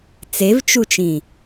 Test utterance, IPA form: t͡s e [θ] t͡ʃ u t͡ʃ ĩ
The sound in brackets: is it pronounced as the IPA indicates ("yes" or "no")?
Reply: no